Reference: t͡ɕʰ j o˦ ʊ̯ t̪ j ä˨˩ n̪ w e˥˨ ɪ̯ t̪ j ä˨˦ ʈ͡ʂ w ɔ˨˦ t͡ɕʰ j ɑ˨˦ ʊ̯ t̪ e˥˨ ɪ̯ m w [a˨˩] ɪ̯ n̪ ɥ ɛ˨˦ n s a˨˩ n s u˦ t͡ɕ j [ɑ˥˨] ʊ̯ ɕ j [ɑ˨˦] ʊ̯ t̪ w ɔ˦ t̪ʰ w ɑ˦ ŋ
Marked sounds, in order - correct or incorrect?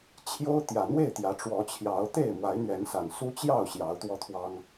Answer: incorrect, correct, correct

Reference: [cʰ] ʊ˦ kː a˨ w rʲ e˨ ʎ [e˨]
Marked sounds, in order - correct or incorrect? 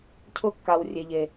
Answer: correct, correct

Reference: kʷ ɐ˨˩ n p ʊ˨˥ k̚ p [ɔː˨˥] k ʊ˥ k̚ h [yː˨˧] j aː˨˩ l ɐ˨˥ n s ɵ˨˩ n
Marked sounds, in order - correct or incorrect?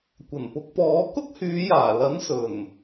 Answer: correct, correct

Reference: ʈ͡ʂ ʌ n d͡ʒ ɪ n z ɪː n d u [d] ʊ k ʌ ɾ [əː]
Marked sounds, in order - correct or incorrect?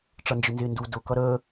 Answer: correct, correct

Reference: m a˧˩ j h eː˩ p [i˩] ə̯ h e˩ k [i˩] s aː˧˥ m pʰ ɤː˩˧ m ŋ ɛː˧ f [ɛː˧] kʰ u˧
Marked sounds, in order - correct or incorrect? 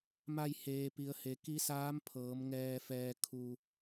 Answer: correct, incorrect, correct

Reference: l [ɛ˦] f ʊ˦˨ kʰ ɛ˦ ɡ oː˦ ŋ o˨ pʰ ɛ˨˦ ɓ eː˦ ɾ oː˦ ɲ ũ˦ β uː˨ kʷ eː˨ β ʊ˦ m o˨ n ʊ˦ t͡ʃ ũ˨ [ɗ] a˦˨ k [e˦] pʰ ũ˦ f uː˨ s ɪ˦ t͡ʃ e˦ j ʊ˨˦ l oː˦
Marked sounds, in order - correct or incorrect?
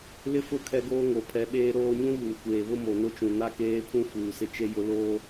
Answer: incorrect, incorrect, incorrect

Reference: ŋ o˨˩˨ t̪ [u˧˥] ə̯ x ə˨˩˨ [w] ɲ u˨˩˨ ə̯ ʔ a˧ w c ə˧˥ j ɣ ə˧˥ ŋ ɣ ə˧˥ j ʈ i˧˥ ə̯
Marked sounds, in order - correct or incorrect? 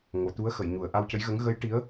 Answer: correct, incorrect

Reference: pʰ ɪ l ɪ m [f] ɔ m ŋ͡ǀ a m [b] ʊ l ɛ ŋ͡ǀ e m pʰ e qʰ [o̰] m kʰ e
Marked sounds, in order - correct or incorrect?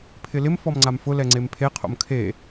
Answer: correct, incorrect, correct

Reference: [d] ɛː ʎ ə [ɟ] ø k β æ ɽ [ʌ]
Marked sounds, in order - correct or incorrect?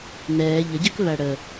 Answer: incorrect, correct, incorrect

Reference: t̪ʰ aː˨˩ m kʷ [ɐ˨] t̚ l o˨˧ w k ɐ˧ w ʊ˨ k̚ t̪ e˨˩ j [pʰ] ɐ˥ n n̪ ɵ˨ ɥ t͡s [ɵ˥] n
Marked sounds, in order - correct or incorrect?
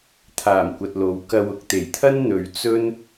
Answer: correct, incorrect, correct

